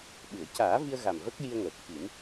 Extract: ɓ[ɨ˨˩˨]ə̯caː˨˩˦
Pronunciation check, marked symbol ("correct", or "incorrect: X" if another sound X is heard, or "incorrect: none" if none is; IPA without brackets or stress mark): correct